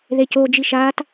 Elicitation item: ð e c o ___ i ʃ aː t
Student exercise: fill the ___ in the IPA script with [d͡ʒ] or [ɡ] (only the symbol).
d͡ʒ